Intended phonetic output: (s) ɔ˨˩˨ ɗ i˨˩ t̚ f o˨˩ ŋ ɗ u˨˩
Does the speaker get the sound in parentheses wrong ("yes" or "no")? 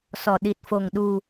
no